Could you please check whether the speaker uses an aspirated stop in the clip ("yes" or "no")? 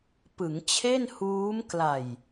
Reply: yes